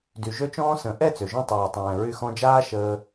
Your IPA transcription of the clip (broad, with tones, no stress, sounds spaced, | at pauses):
d y˨ ʒ ø˦ t͡ʃ ɔ̃ː˦ s ə̃˨˦ ʔ ɛ˦˨ t͡s ø˨ ʒ œ̃˧ tˤ ɛː˨ tˤ ɛ̃ː˨ ɹ y˧ x ɔ̃˧ d͡ʒ aː˦ ʃ əː˧